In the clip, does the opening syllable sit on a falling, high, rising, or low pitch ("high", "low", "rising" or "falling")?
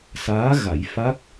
rising